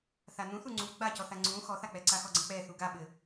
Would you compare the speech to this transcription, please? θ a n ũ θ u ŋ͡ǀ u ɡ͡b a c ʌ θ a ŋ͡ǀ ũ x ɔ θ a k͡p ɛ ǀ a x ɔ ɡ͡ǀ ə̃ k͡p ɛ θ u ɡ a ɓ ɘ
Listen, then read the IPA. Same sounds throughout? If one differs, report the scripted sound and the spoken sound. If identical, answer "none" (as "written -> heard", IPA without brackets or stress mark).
ʌ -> ɔ